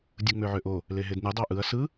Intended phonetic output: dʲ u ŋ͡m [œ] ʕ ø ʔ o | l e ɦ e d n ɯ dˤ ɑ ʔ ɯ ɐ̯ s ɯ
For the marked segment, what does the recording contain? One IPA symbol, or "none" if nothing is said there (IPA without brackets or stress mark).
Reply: ø